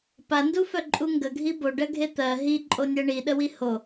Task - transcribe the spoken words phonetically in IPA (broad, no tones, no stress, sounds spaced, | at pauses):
p a n d u f œ ǃʼ u ŋ ɡ ə ɡʱ i b o ɖ ɜ ɡʱ e t̪ ɜ ɦ i ǃʼ o nʲ ɜ ɳ i ɗ ə w i h o